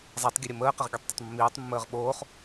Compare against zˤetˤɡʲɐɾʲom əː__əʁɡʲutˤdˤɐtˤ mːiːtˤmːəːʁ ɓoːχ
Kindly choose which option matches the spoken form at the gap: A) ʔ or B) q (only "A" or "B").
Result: B